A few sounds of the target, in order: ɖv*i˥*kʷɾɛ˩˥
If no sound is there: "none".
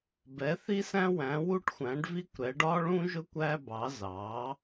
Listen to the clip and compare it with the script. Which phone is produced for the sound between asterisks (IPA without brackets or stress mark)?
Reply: i˥